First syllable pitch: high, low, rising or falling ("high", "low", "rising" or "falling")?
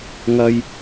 high